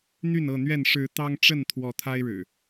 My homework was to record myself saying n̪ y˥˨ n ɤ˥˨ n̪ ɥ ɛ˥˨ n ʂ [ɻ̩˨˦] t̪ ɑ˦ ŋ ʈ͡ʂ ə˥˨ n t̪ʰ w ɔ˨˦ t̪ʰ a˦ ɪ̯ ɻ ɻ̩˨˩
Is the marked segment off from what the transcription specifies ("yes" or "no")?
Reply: no